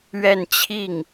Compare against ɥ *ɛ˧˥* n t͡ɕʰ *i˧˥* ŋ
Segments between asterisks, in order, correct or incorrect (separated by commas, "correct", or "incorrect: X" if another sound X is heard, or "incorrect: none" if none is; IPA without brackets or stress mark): incorrect: ɛ˥˧, incorrect: i˥˩